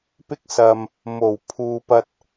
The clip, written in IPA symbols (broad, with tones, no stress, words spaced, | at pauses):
pɪ˧k̚sɐ˨m | mo˨˩w pʰuː˨ pɐ˨t̚